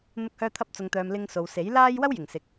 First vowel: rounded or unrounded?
rounded